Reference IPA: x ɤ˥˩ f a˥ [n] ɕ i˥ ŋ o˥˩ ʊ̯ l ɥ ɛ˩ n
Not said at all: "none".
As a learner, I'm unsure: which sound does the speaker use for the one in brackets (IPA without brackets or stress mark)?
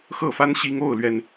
n